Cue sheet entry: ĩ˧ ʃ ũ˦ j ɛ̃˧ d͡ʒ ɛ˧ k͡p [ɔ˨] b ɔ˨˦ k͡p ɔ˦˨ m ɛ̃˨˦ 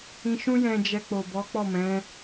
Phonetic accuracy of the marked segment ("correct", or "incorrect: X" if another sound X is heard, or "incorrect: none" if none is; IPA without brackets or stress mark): incorrect: o˨